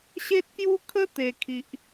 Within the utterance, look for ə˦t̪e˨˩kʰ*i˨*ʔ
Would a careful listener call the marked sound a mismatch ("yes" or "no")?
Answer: no